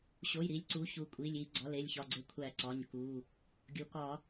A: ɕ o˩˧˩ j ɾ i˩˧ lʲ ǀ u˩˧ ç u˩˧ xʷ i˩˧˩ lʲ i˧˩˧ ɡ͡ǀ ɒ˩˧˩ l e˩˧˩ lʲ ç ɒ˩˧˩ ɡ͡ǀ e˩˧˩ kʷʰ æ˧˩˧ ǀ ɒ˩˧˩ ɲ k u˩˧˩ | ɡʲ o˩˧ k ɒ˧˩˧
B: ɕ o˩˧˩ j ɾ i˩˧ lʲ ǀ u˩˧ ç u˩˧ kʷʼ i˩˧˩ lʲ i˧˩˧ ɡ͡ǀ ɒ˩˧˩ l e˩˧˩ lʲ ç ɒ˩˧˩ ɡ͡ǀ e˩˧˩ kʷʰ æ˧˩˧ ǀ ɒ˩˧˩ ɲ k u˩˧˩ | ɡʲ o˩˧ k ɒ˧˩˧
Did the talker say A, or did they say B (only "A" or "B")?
B